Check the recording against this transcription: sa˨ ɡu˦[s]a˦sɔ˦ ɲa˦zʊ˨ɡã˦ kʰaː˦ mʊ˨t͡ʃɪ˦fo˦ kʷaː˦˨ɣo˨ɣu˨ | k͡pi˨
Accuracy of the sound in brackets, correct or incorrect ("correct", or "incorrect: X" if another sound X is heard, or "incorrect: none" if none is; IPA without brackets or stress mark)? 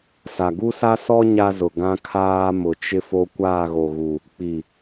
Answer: correct